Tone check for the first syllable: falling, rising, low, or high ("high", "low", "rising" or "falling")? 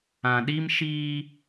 low